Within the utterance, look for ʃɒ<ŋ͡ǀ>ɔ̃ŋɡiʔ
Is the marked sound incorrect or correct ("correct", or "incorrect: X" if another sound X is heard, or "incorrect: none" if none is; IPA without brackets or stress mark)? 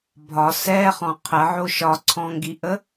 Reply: incorrect: ǀʰ